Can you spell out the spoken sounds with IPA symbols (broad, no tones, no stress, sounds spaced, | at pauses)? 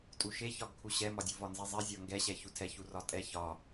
tʼ u ʃ e ç ɒ ɡ kʰ u ɕ ɛ m ɒ dʲ u v ɒ n z e zˤ e zʲ ɒ ŋ ɡ ɛ ɕ ɛ ç u tʰ ɛ ç u r ɒ tʼ ɛ ç ɒ